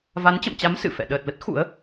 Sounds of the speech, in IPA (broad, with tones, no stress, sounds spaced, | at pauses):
v a˨˦ n t͡ɕ ə̰˧˨ m t͡ɕ a˨˦ m s ɨ̰˧˨ f ɛ̰˧˨ ɗ əː˨˩ t̚ l ə˦˥ t̚ x ṵ˧˥ ə̯